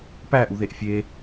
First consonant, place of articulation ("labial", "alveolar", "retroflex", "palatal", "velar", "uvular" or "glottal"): labial